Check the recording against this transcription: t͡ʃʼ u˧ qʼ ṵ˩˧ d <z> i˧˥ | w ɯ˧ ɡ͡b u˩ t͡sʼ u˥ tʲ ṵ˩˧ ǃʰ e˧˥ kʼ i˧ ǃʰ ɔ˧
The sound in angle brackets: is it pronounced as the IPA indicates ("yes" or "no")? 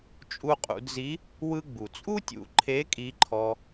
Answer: yes